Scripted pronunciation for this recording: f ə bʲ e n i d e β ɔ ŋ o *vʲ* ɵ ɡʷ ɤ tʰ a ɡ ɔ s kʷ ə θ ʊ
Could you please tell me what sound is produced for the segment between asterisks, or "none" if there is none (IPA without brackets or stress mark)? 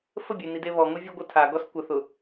vʲ